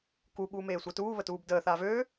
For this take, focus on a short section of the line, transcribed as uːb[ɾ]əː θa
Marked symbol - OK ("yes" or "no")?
no